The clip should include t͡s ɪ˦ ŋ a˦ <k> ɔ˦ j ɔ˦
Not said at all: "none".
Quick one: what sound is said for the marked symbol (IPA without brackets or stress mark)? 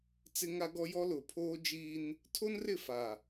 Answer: ɡ